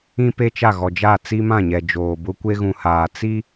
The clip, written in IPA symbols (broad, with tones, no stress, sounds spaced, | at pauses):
ĩ˦ p e˦ t͡ʃ a˦˨ ɣ ɔ˨ d͡ʒ a˦˨ t͡s i˦ m ã˦˨ ɲ ɛ˨ d͡ʒ oː˨ b ʊ˦ kʷ e˦ ɣ ũ˨ h aː˨ t͡s i˦